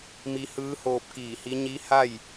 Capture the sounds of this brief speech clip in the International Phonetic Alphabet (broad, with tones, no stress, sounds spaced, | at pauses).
m i˧ h ɯː˧˥ h oː˧ p̚ k iː˧˩ h i˧˥ ɲ i˧˥ h a˥˨ j